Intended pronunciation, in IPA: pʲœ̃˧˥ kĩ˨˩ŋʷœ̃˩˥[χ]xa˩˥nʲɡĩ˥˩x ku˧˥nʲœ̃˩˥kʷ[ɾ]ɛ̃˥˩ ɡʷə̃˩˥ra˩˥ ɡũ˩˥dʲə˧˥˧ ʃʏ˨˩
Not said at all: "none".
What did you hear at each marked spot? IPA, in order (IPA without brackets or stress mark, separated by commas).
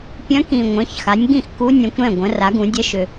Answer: ç, ɾ